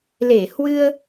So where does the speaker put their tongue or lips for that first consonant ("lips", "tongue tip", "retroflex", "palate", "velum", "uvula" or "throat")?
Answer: tongue tip